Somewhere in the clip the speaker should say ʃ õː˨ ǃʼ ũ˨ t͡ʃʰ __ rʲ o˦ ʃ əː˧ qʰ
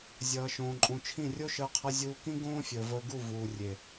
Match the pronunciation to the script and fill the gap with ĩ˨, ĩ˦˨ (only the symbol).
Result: ĩ˦˨